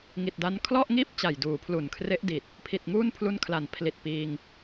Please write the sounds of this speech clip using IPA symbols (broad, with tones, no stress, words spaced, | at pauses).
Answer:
ŋi˨˩t̚da˦˥n kʰlɔ˥˩ʔŋiː˥˩p̚ t͡ɕa˨˩jduː˩˦pʰlu˨˩n kʰre˦˥ʔdi˨˩t̚ | pʰi˨˩t̚ŋuː˥˩npʰlu˦˥nkʰla˩˦n pʰli˨˩t̚piː˧ŋ